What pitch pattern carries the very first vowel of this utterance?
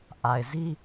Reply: low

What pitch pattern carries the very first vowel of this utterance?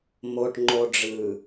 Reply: low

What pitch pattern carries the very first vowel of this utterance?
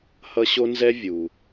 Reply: high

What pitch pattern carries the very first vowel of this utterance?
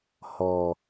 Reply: low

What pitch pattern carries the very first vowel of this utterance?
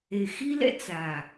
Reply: low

